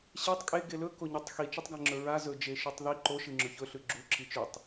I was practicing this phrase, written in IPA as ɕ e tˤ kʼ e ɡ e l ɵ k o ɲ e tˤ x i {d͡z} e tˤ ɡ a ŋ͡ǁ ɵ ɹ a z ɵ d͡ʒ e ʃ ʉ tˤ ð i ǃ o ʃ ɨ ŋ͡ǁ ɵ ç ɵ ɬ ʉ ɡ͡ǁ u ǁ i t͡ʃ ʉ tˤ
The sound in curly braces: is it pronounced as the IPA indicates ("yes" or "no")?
no